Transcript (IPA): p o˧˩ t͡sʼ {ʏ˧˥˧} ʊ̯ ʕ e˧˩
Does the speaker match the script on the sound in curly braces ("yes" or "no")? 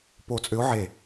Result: no